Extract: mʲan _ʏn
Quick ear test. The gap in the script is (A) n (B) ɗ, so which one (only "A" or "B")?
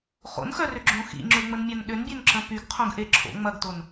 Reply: B